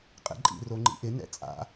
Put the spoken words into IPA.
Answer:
qʼɛ̰ǃʼḭ roŋ͡ǃḭʔɪ nɛ̰t͡sʼa̰

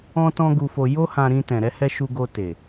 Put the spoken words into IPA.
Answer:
ɔ̃˦tɔ̃˦ɡu˧fo˧ jo˦hã˧ɾĩ˧ tɛ̃˨ɾɛ˧hɛ˧ ʃu˧ɡo˧te˨

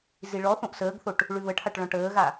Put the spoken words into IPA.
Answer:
ziɭɔθõʔ səːɡθoʈ | ɭʉβəʈʰaʈ ɭɔ̃ʈəːɣa

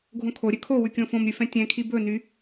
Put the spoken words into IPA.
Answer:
ɡʱõkʰoɾʲø kʰowʉ kʲõfõmɾʲʉ fɛ̃tʲɛ̃kʰi bɵny

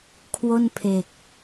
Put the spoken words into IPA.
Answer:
kʰwo˥˩npʰe˨˩k̚

